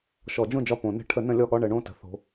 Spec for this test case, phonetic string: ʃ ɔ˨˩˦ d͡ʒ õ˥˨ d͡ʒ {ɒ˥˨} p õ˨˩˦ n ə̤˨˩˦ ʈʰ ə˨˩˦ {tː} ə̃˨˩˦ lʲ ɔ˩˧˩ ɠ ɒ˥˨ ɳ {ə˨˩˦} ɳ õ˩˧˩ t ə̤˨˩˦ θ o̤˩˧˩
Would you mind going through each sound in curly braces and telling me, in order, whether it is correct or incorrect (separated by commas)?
correct, incorrect, correct